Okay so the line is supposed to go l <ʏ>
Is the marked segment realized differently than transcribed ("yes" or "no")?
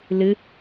yes